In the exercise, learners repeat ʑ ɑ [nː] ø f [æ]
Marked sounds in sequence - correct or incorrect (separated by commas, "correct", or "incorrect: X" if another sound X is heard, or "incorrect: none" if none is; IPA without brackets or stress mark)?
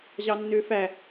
correct, correct